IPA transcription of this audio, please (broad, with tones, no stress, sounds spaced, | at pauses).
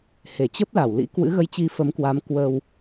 h e˧˩ t͡ɕ ə˦˥ p̚ l a˧˩ w l ḭ˧˥ k w ɨ̰˧˥ ɣ ə˨˦ j t͡ɕ i˨˦ f ə˨˦ m k w a˨˦ m k w ə˧ w